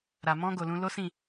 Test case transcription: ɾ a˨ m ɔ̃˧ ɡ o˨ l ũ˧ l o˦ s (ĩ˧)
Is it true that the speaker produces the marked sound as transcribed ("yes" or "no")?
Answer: no